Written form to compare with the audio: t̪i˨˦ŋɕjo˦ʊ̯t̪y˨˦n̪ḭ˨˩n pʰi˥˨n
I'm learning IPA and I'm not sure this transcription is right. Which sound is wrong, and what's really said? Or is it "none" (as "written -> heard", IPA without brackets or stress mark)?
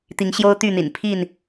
y˨˦ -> y˥˨